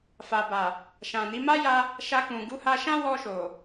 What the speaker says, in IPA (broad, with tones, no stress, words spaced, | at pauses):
fa˨ba˨ | ʃã˨ni˨˦ ma˦ja˧ | ʃa˧kũ˨ ɡu˨˦ha˧ʃã˦ wɔ˧ʃo˨